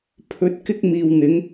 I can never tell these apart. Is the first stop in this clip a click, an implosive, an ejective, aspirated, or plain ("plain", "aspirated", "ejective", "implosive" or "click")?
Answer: aspirated